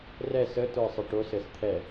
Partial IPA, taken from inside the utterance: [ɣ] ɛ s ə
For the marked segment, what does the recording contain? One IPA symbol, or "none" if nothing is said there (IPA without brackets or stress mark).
r